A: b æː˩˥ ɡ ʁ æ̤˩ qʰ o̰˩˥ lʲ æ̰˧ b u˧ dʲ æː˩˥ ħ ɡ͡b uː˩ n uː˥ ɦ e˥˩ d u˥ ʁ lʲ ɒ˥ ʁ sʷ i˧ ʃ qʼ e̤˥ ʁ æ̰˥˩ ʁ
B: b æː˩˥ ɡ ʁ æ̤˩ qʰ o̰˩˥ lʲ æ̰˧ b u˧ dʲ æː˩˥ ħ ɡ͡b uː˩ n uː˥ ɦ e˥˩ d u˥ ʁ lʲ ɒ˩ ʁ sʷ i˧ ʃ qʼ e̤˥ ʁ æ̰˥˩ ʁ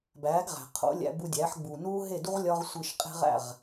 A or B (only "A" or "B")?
A